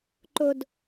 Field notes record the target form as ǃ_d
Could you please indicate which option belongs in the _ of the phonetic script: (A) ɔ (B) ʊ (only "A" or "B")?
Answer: B